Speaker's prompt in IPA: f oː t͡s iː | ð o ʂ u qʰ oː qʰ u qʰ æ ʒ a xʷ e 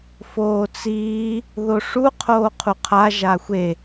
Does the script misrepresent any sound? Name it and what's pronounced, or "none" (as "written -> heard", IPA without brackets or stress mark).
æ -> a